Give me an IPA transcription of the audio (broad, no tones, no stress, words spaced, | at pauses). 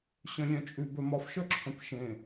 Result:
ɕœ̃lʲœ̃t͡ʃʼʉ bœmɒfʃœǁʰœ̃p ʃẽ